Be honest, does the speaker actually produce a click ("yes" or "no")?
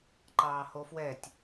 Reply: yes